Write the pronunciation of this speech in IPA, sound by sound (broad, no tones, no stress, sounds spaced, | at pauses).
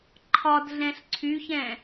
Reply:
ǃʰ ɒ d ɮ ɛ̃ ɬ ǀʰ y ç ɛ̃